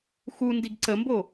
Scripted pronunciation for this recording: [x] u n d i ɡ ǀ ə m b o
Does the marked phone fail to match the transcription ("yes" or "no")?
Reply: no